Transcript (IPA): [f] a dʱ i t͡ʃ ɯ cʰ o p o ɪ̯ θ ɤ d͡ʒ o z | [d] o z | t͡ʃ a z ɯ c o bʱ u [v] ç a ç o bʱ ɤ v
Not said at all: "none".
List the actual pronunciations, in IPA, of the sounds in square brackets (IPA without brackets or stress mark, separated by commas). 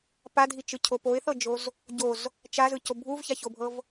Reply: p, ɟ, v